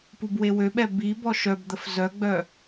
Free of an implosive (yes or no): no